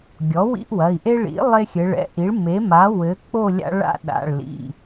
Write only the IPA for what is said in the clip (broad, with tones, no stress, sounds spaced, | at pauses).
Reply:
ɡʲ ɔ˩˥ w ḭ˦ ʔ w ɐ˩˧˩ i̯ ʔ e˦ ɭ ḭ˩˥ lˠ e˦ xʲ ɘ˩˧ ɭ ɛ̰˩˥ ʔ i˩˥ ɭ m e˩˥ m a˩˥ w ɘ˩˥ k͡p o˥˨ lʲ a̰˦ ɭ a̰˦ ɗ a̰˩˧˩ ɭ l ḭ˩˧˩